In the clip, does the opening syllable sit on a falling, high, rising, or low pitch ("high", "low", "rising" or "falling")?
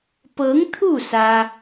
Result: rising